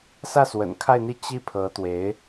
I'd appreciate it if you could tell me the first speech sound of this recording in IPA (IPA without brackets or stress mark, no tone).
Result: s